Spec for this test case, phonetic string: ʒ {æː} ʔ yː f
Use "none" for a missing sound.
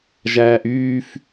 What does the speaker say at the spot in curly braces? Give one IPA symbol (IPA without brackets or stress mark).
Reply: æː